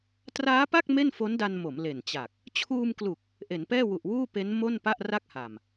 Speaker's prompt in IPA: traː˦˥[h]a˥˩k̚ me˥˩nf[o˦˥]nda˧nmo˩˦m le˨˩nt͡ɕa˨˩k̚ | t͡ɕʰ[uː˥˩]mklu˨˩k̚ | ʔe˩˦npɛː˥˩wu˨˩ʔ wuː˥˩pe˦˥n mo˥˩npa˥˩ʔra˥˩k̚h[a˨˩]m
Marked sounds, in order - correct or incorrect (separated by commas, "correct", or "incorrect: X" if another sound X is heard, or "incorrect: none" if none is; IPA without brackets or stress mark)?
incorrect: p, correct, incorrect: uː˧, correct